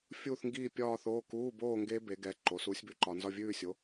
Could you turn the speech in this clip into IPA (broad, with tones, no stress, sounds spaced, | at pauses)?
fʲ uː˥˧ θ ŋ ɡ iː˥˧ pʲ ɒː˥˧ θ oː˧˥˧ k uː˧˥˧ b oː˥˧ ŋ ɡ e˦˥ b e˩˥ ɡ ɛ˩˧˩ ǃ o˩˥ s uː˩˥ sʲ b ʉ˩˥ ǃ ɒ˩˧ n z ɒ˥˧ vʲ ʉː˥˧ sʲ o˩˥